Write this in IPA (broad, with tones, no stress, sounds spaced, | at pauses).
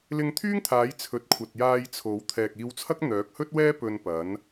l ɪ˧ ŋ t̪ʰ yː˥ ŋ t̪ʰ aː˨˥ j t͡sʰ ɵ˨ t̚ kʷʰ ɐ˨ t̚ j aː˧ j t͡sʰ o˨˥ w t̪ʰ ɛː˨ k̚ iː˧ w t͡sʰ ɐ˥ k̚ n̪ œː˨˥ k̚ h ɵ˥ t̚ w ɛː˥ p ɵ˧ n p ɐ˨˥ n